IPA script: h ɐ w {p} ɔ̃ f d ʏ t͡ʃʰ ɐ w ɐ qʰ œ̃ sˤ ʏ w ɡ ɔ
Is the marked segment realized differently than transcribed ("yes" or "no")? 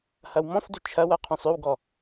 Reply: yes